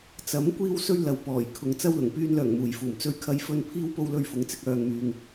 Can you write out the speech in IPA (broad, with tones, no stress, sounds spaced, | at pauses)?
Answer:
t͡s ɐ˨˥ m kʷ iː˥ w s ɵ˥ ɥ l ɐ˨ w p ɔː˨˩ j kʰ ʊ˨ ŋ t͡s ɐ˧ w l ʊ˨˩ ŋ p yː˧ n l œː˨˩ ŋ m uː˨˩ j f uː˨˩ m t͡s ɵ˧ ɥ kʰ ɐ˧ j f ɵ˧ n pʰ iː˥ w p o˧ w l ɵ˧ ɥ f ʊ˨˥ ŋ t͡s ɪ˧ k̚ œː˨ ŋ m yː˨ ŋ